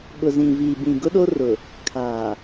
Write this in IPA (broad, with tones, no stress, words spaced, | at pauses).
ɓʊ˨zĩ˨viː˨ bĩ˨ɡʊ˦ ɗo˦rʊ˨ | kʰaː˨